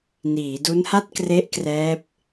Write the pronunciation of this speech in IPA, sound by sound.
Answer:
niː˩˦du˦˥nha˥˩t̚kre˦˥ʔ krɛː˦˥p̚

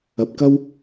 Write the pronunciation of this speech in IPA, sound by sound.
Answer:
ɐ˧p̚kɐ˥w

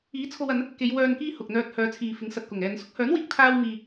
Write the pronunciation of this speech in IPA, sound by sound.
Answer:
iː˨˥t͡sʰo˧wɐ˨˧n | ke˨˧j wœː˨nkiː˧ hʊ˨k̚n̪œː˧t̚ hœː˨˧t͡sʰiː˨fɪ˨˥ŋsɐ˨t̚ kʊ˨˩ŋɛː˨nsʊ˥k̚ hœː˨˥nwiː˨k̚ t̪ʰaː˧wmiː˨

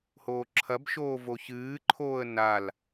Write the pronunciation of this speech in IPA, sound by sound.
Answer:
hoːǁʰɐbʃoː voçɨːǃʰoːə̯ nal

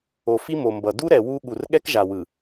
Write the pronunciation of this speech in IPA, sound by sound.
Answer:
o˨fi˦ mo˨mbʌ˨ du˦ɾɛ˨ wu˦ ɠu˨rɠɛ˦kʒa˨wɯ˨

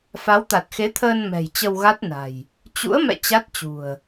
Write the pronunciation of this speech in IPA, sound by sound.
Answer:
fa˨˦wt̪a˨˩t̚xe˨˦t̪ʰəː˧n mɛ̤˨˩jt͡ɕə˧wɣa˦˥t̚na̤˨˩j | t͡ɕṵ˧˥ə̯mɛ̰˧˨ t͡ɕa˦˥t̚t͡ɕṳ˨˩ə̯

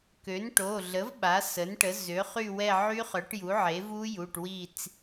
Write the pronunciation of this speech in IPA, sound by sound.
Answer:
kø˩˥nʈo˩˧˩ɮə˩˥v ɓa˩˥sə˩˥nʈə˩˥ zø˩˥χy˦˨wɛ˦˨ ʕy˦˥χœ˩˥ʈju˩˥ ʕe˩˥vu˦˥ju˩˧˩ʈwi˦˨t͡s

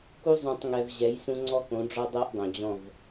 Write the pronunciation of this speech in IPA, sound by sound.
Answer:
ku˦zˤũ˨tˤŋɛ˨v ʑɛ˨˦jsũ˦ ŋ͡ǀɔ˦kõ˨˦ɖ͡ʐɔ˦dˤɛ˦ʔ dˤõ˨d͡ʑɔ̃˦˨v

